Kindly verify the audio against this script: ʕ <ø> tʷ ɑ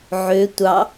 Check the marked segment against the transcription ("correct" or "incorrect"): correct